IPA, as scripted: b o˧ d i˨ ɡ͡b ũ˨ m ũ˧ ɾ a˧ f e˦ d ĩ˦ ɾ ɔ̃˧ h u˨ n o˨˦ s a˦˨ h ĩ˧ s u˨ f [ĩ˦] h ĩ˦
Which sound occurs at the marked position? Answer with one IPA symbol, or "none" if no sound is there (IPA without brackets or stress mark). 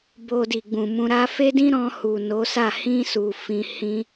ĩ˧